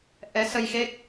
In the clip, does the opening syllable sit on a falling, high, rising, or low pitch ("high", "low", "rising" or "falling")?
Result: rising